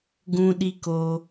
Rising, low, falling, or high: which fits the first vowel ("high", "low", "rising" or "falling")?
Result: high